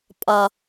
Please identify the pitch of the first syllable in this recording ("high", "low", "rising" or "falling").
low